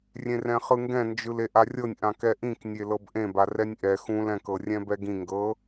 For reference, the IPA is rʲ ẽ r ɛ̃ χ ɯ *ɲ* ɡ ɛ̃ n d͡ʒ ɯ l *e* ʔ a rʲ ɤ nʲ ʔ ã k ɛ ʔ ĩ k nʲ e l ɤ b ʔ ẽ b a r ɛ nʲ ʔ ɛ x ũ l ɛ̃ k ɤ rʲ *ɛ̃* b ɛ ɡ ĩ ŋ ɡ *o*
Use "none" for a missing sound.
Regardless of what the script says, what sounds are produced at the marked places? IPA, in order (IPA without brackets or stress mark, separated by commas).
ŋ, e, ɛ̃, ɤ